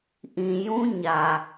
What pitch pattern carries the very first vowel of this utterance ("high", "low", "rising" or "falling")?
low